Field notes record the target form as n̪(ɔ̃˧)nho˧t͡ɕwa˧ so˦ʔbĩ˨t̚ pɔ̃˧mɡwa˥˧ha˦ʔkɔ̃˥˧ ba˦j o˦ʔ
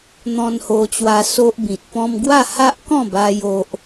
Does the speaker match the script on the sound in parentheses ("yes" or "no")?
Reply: yes